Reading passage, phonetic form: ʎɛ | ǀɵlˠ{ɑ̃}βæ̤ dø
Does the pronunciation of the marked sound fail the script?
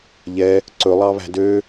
yes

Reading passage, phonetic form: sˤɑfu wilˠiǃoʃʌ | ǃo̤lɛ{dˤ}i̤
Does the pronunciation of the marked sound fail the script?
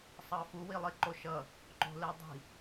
no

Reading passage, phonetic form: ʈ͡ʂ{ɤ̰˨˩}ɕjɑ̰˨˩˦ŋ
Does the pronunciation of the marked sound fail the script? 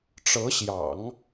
yes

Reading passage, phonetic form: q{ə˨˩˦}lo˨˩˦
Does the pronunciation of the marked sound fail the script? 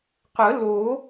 no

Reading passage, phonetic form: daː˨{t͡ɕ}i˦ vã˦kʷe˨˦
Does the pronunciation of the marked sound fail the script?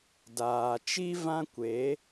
yes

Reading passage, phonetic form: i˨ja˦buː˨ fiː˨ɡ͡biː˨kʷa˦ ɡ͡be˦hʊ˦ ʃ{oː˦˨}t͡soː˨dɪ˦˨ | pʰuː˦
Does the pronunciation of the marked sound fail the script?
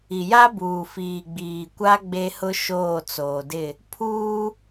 no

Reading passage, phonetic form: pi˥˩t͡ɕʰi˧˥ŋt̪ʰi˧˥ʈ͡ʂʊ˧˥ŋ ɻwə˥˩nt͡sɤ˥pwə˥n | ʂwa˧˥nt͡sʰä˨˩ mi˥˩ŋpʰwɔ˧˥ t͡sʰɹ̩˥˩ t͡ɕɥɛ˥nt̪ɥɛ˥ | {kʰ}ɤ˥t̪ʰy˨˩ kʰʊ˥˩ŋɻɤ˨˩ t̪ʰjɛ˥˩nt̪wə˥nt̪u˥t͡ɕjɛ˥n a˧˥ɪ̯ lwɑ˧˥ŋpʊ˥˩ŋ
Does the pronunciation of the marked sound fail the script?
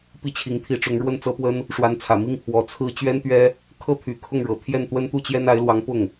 no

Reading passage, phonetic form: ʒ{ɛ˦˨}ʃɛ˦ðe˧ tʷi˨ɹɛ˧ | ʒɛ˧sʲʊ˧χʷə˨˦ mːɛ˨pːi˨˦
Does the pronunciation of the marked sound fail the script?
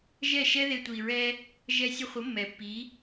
no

